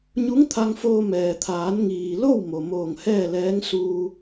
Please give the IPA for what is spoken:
ɲu˧˥ŋt̪ʰa˧ŋfoː˧ mɛː˩t̪ʰaː˩˧nŋiː˩lo˥˨w mo˩moː˧˩ŋhɛː˥˨lɛː˧˥ŋ suː˧

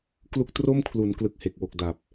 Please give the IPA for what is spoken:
klu˥˩k̚ tro˥˩mkʰlu˩˦n klɯ˨˩k̚he˨˩k̚ wo˨˩k̚ da˨˩p̚

